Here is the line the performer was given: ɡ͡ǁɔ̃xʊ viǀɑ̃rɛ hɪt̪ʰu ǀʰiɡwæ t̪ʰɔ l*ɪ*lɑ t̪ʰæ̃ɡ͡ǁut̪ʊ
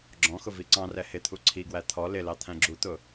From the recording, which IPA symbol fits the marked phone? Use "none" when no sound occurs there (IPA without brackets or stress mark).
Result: ɪ